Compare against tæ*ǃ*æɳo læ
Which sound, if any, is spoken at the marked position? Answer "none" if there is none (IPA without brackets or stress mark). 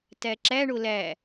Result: ǁ